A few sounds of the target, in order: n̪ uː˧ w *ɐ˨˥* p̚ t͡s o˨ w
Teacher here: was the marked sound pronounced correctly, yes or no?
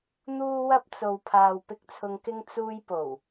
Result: no